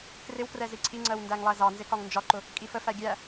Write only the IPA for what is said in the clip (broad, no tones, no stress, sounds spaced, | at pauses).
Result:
k r ɪ w k r ɛ z i ǀʰ i ŋ͡ǀ ɜ w n d æ ŋ lˠ æ z ɑ n z ɪ k ɒ ŋ n d͡ʒ ɒ ǃ ʊ | kʼ i f ə f æ ɡʲ æ